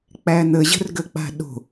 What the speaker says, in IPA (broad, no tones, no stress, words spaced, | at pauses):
k͡pæn̪əʑə̤rɡə k͡pa̤ɗo̤